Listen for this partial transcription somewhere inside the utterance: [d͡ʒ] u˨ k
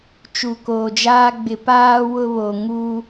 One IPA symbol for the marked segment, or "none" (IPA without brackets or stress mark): t͡ʃ